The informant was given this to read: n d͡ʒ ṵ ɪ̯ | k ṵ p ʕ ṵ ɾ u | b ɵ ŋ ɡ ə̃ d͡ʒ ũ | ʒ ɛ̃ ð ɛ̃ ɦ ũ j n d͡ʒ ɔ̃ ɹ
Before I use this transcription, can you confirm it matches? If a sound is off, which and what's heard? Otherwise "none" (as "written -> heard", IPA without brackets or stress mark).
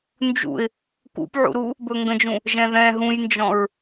none